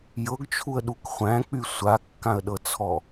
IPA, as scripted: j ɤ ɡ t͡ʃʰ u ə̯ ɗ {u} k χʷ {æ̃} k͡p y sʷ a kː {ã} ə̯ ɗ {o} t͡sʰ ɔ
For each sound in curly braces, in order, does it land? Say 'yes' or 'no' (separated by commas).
yes, yes, yes, no